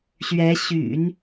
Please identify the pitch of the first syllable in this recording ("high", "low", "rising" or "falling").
rising